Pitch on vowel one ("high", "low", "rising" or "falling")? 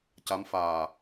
rising